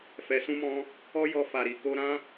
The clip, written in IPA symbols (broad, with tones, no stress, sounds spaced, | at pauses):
f ɛ˨ s ũ˧ m ɔ̃˧ | ɔ˦ j ɔ˧ f a˨ ɾ i˨ k o˧ ɾ ã˦